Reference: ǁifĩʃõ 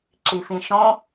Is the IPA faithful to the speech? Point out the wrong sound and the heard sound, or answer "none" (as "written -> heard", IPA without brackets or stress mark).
none